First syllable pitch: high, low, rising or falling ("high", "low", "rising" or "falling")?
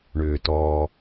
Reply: low